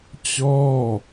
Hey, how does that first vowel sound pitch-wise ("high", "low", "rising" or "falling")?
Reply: falling